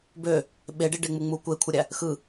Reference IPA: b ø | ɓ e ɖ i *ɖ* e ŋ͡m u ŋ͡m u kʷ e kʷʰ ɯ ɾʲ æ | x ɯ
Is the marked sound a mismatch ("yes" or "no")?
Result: no